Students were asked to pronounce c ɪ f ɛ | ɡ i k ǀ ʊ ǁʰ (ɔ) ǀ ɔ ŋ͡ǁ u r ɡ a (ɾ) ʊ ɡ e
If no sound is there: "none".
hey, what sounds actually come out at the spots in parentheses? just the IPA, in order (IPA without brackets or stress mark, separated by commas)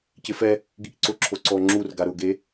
o, ɾ